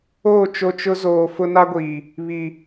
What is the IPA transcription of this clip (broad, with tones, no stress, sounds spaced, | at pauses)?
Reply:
oː˦˨ t͡ʃ o˦ t͡ʃ ʊ˦ z oː˨ f ʊ˦ n a˦ ɡʷ iː˨ | β i˨